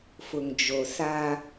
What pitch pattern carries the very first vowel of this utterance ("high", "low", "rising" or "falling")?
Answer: low